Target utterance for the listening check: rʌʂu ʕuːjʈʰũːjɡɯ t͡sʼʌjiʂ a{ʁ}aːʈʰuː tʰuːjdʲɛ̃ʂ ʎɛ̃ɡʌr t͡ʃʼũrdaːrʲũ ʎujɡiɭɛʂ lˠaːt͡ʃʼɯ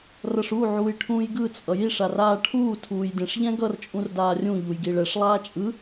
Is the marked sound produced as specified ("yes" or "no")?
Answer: no